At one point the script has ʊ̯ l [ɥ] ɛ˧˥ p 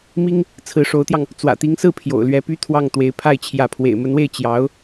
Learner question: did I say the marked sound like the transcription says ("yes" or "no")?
yes